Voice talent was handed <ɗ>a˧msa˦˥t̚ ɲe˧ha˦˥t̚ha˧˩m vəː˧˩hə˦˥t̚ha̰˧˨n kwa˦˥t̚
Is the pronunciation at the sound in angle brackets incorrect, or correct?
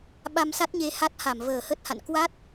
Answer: incorrect